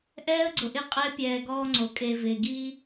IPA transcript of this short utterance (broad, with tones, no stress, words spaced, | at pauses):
ʔɛː˦ə̯ ɡ͡ǀʊ˨ʔɪ˦˨qʼɪː˦ pʲɛː˨ ɡɔː˦ŋ͡ǀo˨ kʼe˨ vɪː˨ɡiː˦